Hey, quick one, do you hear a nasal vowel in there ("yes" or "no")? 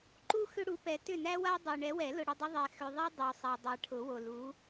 no